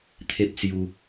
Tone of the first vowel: high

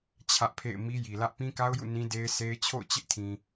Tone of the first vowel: high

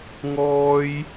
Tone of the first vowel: high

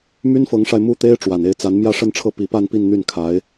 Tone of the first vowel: high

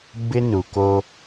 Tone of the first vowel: high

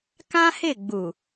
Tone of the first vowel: high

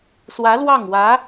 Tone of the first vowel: rising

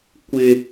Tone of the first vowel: high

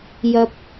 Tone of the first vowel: rising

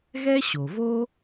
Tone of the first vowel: high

